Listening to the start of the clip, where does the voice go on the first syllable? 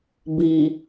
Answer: low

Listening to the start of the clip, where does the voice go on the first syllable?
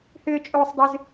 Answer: high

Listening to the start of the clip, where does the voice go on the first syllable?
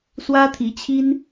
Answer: high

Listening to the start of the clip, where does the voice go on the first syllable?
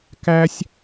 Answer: high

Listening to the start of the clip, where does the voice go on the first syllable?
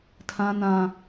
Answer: low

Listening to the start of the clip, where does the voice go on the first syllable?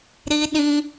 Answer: high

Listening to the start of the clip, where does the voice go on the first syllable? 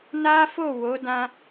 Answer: high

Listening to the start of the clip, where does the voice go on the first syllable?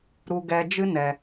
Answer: high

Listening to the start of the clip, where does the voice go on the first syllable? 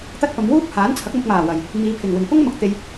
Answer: high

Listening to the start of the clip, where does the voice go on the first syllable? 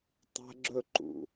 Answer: high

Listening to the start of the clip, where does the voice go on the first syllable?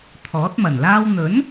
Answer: rising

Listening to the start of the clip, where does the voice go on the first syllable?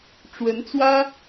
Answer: rising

